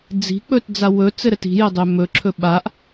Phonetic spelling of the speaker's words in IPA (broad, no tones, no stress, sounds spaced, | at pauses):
d͡z i̤ k͡p ɵ t d͡z a w ɵ t͡s ɘ ɾ ɘ t i̤ j ɘ dˤ ø m ɵ ǁʰ ɵ ɓ a ʔ